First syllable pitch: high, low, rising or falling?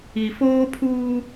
low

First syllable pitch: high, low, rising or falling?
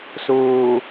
low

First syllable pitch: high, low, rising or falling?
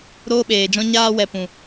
high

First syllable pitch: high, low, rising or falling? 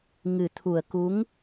low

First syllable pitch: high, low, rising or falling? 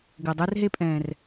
low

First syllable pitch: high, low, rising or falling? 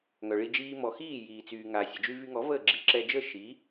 low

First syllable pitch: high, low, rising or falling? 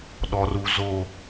low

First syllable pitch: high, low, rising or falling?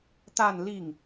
falling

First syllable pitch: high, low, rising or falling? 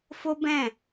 high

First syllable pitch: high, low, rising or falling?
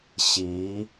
rising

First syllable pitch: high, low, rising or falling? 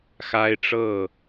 high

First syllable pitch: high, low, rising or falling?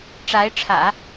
rising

